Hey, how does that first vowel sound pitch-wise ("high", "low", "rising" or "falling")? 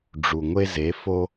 low